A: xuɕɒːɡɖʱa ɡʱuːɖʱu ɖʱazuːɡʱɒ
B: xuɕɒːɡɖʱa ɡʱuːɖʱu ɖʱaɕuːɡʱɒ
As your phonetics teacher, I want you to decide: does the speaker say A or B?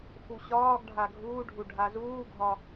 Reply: A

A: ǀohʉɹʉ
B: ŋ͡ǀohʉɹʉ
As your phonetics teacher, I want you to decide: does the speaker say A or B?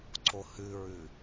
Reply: A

